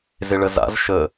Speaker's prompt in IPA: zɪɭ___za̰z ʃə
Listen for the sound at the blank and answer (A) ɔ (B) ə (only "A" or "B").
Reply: B